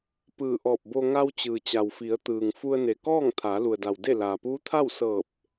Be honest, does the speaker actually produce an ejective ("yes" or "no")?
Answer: no